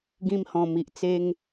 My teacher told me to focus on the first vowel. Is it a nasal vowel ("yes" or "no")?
yes